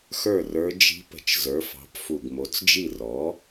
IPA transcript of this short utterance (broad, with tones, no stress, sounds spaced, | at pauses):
x ə˞˥˩ r ə˞˧˥ d͡ʒ i̤˧˥ p ə̤˩˥ t͡ʃ z ə˞˩˥ f ɑ̤˩˥ p f u˨˩ ɡ m o˩˥ t͡s d͡ʒ i˥˩ r ɔ˩˥